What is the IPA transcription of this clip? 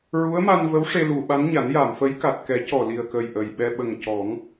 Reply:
ɹu˧˥ə̯ma˧nvə˧˥w ʂe˧lu˨˩˨ɓa˧˥nɲa˨˩˦n ja˨˩˨mfə˧˥jka˨˩t̚kɛ˨˩˦ cɔ˨˩li˨˩ə̯kə˨˩j ʔə˨˩jɓɛ˧ ɓə˨˩ŋ cɔ˨˩˦ŋ

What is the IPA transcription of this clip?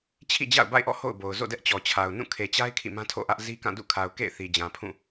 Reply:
t͡ɕʰḭ˦˨d͡ʑa̰˦˨ʊ̯ba̰˦˨ɪ̯ʔɔ̰˦˨ ho̰˦˨ʊ̯bo˨ʊ̯ zo̰˦˨dɛ˦ʔt͡ɕɔ˨ t͡ɕʰa˨ʊ̯nũ˦˨ kʰe˨t͡ɕa˦ɪ̯ kʰḭ˦˨mã˦tʰo̰˦˨ʔä˦ʔ zi˦kã˦˨ dṵ˦˨kʰa˨ʊ̯ kḛ˦˨ɪ̯ θi˨d͡ʑã˨ pʰũ˦˨

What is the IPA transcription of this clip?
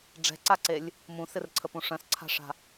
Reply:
ɖ͡ʐɛ̤ǀaǀelʲ | mũsɪrǀʰəpũ ʂœ̃sǀʰa̤ʂa̤

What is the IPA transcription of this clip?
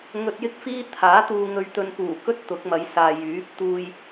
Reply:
ŋɵ˧t̚jɪ˥k̚fiː˥ t̪ʰaː˨˥t̪uː˧ŋɵ˧ɥt̪ɵ˧n puː˨˩kɵ˥t̚ t̪ʊ˨˥k̚mɐ˨˧jsaː˨ jyː˨˥p̚ t̪uː˧j

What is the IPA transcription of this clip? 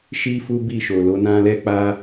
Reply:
ʃi˦fu˦bi˦˨ʃo˨ lo˨˦nã˦ lɛ˦k͡pa˦

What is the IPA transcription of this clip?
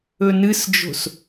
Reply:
ɵnɨsd͡ʒo̤s

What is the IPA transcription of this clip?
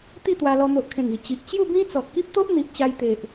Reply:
t̪i˥˧t̪wa˧lɔ˧ n̪o˨ʔkʰẽ˨˩ŋi˨˩ t͡ɕi˨ʔ t͡ɕju˥˧bĩ˦ t͡sɔ˨t̚ki˦p̚t̪o˦ʔ n̪i˨ʔt͡ɕa˧jt̪e˨ʔ

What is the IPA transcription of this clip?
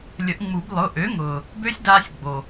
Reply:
lʲə˨˩˦ʔŋ͡mu˨˩˦b lˠʊ˩˧˩ ʔø˩˥ŋʊː˩ | bø˦˥sʲdaː˧sʲ ɡ͡bo˩

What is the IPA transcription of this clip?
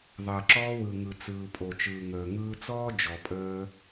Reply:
ðˤəː˩ǁɔː˧ wɯ˩ŋɯ˩ t͡sɯː˩pʼo˩ t͡ʃɯː˩ŋəː˩ ŋɯː˧t͡sɔː˥ d͡ʒɔ˩pʼəː˧

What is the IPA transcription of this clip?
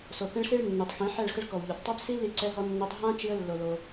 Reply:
so˨kə̃˧ɭsi˧ɭ nːu˨tˤxĩ˨˦ħɛ˦˨ɭ xə˧ɭkɔ˨wʎo˨θtˤø˦b si˦ li˦ǀɛ˦ɦɔ˦nːo˦tˤ ɦã˦ t͡ʃi˦ə̯lːo˧lo˧

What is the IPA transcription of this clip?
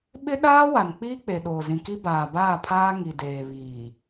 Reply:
ɓɪ˦ɗaː˦wa˨n k͡pi˦ k͡pe˨ ɗoː˨zĩ˨ki˦ baː˨baː˦˨pʰaː˦ ŋi˨deː˨βiː˨

